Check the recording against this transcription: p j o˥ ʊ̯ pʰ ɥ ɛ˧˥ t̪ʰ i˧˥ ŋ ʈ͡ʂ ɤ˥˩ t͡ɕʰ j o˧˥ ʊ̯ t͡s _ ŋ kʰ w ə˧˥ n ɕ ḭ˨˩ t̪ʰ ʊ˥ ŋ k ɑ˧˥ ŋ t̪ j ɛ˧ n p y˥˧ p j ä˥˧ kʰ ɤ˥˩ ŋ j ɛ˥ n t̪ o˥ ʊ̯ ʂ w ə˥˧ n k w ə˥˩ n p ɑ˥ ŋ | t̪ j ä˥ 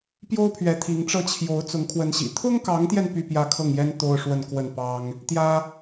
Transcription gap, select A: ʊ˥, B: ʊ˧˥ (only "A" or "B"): B